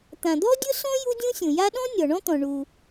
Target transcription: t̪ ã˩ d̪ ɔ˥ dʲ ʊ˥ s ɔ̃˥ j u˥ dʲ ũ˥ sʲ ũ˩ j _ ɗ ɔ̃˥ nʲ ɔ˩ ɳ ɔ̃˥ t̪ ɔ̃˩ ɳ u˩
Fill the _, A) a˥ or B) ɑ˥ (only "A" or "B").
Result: A